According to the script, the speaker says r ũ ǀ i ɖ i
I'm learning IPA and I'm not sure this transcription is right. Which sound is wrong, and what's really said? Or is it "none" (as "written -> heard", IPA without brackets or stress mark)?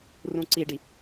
none